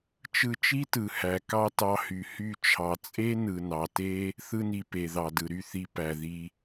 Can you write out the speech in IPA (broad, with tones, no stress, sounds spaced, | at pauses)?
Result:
t͡ʃ ɯ˧ t͡ʃ i˦ t ɯ˨ h æ˨ k ɑ˦ t ɑ˧ h y˨ h y˦˨ t͡ʃʰ ɑ˨ t͡sʼ e˦ n ɯ˨ n ɑ˨ t e˦ | θ ɯ˧ n i˨ p e˨ ð ɑ˨ d ɯ˨ ɾ y˦˨ θ i˧ p æ˨ ð i˧